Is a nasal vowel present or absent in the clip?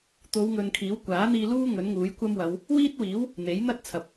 absent